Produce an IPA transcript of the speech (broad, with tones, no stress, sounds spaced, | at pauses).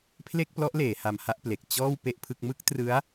pʰ l e˥˩ k̚ p l ɔ˦˥ ʔ l eː˩˦ h a˧ m h a˥˩ ʔ p l e˨˩ k̚ t͡ɕ ɔː˥˩ w p e˥˩ ʔ pʰ ɯ˥˩ k̚ m ɯ˥˩ k̚ t r ɯ˦˥ a̯